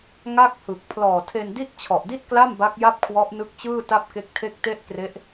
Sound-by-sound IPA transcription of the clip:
ŋ a˥˩ k̚ h ɯ˨˩ k̚ pʰ l ɔː˨˩ tʰ e˧ n d i˥˩ t̚ t͡ɕʰ ɔ˨˩ ʔ d i˥˩ t̚ k l a˥˩ m b a˦˥ k̚ j a˥˩ p̚ kʰ w ɔ˦˥ ʔ n ɯ˦˥ k̚ t͡ɕ ɯː˥˩ t a˥˩ p̚ k e˦˥ k̚ tʰ e˥˩ k̚ t e˥˩ ʔ k r e˦˥ ʔ

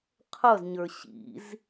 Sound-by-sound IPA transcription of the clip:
qʰ ʌ z ɲ ə˞ ɕ ḭ z

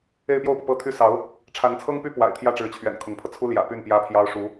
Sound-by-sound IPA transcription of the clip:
e˥˧ ɪ̯ p j o˥˩ ʊ̯ p ɤ˩ p ɤ˥ t̪ʰ y˥ s ɑ˧˥ ʊ̯ | ʈ͡ʂʰ a˧˥ n t͡sʰ ɤ˥ ŋ p y˥ p w a̰˨˩ ɪ̯ t̪ʰ j ä˥˩ ʈ͡ʂ ɻ̩˧˥ t͡ɕʰ ɥ ɛ̰˨˩ n kʰ ʊ˧˥ ŋ pʰ ɤ˧ t͡sʰ u˥ l j ä̰˨˩ p y˥˩ n p j ä˥ pʰ j ɑ˥ ʊ̯ ʂ u˧˥

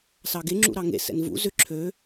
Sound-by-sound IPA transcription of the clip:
s ɑ ɡ e ŋ͡ǁ ṵ ɾ ɑ ŋ ḛ s ɛ̰ n v ṵ z ʏ ǁʰ ø

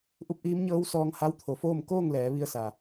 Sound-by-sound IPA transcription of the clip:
ʔ u˧˥ p̚ ʔ iː˧˥ m ɲ ɤː˧˥ w s ɔː˧ ŋ h a˧˥ w t̪ʰ o˩˧ f oː˥˨ m k oː˥˨ ŋ l ɛː˩˧ ʋ i˧ ə̯ s a˩

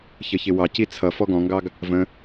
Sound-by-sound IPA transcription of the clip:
ç ə ç ɪ w ɑ c i t͡sʰ ʌ f ɔ ɡ ɔ̃ ŋ ɡ ɑ ɡ | v ə̃

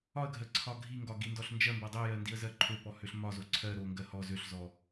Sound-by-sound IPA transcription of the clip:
ɒ ə̯ ɡʱ ɜ ǀʰ ɒ ɡʱ i ŋ ɡ ɒ ɡ i n d ɔ ɬ n d͡ʒ ɜ m b ɜ dˤ i j ɜ n d i ə̯ z ɜ ǃʰ ø p ɔ h ø ɬ m ɒ z o ǀʰ ɜ ɾ o ŋ ɡ ɜ h ɔ z ø ɬ z ɔ

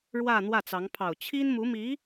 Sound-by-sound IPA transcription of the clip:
ɻ w ä˥˧ n̪ w ä˥˩ t͡s ɑ˧˥ ŋ pʰ ɑ˨˩ ʊ̯ t͡ɕʰ i˥ n m u˧˥ m i˧˥

